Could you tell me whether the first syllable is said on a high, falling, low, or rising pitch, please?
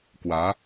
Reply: rising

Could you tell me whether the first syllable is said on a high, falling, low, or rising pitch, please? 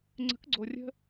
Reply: rising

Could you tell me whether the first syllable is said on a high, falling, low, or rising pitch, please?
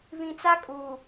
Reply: low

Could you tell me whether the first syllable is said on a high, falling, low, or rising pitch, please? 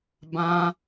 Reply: high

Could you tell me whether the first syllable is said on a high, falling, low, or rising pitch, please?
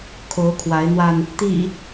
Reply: rising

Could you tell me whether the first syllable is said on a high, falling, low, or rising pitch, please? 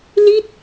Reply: falling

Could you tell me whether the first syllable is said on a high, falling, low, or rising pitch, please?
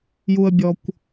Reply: low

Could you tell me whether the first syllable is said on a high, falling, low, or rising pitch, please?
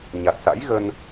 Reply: low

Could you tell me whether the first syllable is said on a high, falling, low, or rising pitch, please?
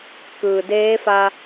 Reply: low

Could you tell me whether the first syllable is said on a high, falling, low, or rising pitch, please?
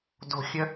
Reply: low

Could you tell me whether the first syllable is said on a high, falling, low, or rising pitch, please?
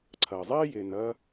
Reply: low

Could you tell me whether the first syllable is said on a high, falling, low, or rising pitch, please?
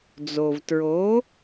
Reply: low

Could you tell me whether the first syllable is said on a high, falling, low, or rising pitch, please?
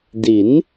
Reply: rising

